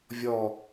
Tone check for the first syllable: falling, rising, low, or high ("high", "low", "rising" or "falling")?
falling